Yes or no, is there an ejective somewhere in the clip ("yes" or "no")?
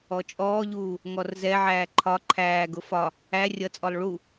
yes